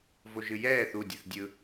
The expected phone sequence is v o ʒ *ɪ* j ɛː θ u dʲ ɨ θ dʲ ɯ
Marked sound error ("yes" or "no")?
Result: yes